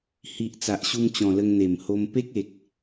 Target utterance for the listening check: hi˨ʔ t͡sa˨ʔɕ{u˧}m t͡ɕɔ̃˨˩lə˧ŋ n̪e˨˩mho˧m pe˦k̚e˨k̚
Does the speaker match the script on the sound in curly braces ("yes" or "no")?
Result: yes